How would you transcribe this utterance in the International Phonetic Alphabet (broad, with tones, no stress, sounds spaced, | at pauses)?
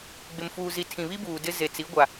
ɡ͡b ɪ˨ m f uː˨ z i˨ tʰ ĩ˨ β i˦ b uː˨ d ɪ˦ z e˨ t͡s i˨˦ ɡʷ a˨